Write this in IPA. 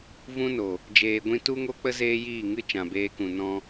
v ũ˦ n o˨ | d͡ʒ eː˧ ɡʷ ĩ˦ t u˦ ŋ o˦ k͡p ə˦ z eː˦ j iː˦˨ ŋ ɨ˦ t͡ʃ ã˨ b eː˧ k ũ˨ n ɔ̃˧

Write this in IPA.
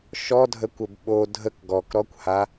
ʃ ɔ dʱ ə kʷ ə b ɓ o dʱ ə k ɡ ɔ k ɾ ɔ kʷ h a

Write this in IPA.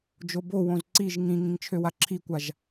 d͡ʒ o b o w õ z ǀ i ʒ ŋ ĩ ŋ ĩ ŋ t͡ʃʰ ø w a ǁʰ i kʷ a ʒ

